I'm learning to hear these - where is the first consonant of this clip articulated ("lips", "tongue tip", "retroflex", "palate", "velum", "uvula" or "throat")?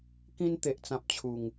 velum